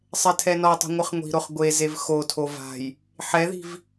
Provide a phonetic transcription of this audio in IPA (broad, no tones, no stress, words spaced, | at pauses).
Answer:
sˤɛtʰɛnɔtˤi̤ ŋʷɯχŋʷi̤ɾoχ ɡʷezev xotʰo va̤j | ħɛði̤v